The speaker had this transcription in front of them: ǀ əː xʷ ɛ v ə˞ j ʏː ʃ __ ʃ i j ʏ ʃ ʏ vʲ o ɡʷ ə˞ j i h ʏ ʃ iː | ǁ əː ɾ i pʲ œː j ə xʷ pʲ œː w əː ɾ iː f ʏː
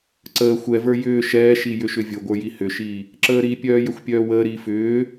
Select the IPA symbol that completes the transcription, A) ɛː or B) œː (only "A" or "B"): A